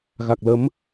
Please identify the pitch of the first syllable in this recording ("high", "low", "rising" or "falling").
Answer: low